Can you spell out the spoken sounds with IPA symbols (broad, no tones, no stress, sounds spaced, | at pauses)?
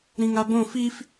ɾ ĩ ŋ a b õ f i f